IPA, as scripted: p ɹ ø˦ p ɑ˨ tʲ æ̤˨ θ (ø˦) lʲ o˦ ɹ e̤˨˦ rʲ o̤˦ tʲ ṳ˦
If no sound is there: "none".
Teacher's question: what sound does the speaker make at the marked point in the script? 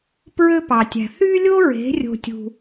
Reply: y˦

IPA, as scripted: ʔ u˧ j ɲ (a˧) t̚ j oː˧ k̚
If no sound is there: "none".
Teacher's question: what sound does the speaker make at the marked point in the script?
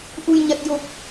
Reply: a˧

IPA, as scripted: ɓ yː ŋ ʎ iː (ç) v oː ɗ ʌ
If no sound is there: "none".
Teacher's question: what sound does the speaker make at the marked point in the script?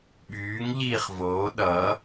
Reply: χ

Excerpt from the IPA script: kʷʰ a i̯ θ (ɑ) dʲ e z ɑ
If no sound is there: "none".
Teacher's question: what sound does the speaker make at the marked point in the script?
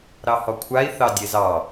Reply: ɑ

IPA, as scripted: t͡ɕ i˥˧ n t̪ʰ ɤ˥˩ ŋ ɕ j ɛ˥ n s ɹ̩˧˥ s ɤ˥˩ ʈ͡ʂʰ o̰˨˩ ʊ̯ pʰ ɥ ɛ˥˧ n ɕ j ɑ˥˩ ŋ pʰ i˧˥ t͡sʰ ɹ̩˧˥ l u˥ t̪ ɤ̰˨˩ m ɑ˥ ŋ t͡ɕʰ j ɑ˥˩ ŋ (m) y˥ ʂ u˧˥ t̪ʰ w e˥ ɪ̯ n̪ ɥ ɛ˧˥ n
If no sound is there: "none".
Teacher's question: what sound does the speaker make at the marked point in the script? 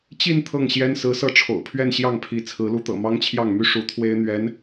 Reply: m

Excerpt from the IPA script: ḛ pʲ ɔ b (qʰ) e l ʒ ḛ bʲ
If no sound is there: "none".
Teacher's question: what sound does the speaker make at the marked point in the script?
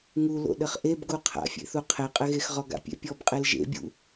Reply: qʼ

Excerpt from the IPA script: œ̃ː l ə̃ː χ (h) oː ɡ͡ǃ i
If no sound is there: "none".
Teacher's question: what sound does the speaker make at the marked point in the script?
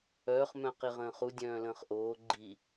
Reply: ʔ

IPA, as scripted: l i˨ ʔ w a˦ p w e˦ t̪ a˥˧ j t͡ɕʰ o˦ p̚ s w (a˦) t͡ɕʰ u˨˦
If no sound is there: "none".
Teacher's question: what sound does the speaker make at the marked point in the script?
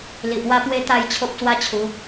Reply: a˦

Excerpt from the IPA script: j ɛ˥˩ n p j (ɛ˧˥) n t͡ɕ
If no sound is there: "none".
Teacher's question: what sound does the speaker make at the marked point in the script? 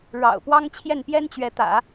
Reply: ɛ˥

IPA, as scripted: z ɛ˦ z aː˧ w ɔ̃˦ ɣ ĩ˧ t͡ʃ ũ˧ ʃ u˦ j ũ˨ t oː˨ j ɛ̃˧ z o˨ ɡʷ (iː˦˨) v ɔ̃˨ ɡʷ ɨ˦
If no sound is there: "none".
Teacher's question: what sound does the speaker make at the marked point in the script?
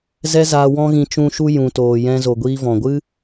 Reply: iː˧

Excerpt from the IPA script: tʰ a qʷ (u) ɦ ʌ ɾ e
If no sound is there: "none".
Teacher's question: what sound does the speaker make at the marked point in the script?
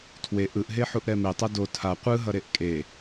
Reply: ɯ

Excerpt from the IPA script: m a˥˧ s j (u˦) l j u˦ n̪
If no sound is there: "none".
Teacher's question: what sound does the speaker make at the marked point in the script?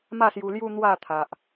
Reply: u˧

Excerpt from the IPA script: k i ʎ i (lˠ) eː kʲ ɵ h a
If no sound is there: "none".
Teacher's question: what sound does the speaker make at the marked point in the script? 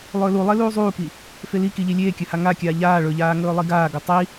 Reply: lʲ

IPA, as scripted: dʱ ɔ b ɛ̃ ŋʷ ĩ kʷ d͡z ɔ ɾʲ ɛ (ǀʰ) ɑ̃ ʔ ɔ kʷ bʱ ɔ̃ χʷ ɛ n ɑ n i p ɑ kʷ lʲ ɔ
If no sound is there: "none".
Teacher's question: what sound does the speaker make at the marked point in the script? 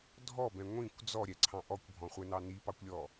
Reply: ǀʰ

